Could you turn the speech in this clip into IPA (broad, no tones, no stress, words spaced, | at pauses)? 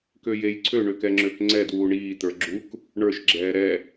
køjejǀʰø ɳøkɛŋ͡ǁøkŋ͡ǀɛ dwuːɳiː t̪ə˞ɡ͡ǁuk | ɳə˞ʃ ɡ͡ǁɛːɾɛ